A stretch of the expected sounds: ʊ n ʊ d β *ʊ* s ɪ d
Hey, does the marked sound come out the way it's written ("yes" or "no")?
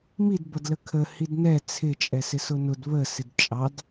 no